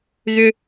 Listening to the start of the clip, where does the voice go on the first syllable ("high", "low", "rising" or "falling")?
high